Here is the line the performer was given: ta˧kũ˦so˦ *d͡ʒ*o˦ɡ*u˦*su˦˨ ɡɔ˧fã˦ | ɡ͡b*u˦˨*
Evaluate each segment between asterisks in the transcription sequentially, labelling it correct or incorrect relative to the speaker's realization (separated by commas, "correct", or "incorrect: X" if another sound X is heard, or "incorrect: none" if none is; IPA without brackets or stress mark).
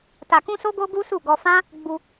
incorrect: ɡ, correct, incorrect: u˧